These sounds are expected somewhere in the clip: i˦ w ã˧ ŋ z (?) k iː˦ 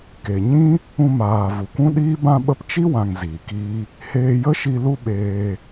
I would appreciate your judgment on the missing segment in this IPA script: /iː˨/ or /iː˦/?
iː˨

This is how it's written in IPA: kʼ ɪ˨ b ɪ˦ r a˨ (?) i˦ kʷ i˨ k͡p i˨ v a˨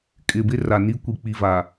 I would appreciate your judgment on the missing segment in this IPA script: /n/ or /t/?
n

